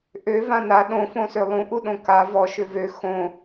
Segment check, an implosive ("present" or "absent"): present